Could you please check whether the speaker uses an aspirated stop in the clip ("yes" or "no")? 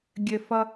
no